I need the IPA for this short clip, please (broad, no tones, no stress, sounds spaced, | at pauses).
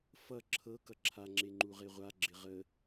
f ʌ ǁʰ ɤ k ʌ ǁʰ a ŋ͡ǁ e ŋ͡ǃ u ʁ e ʁʷ a ɡ͡ǁ ɪ ʁ ə